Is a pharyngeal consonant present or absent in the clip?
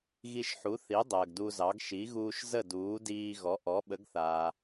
present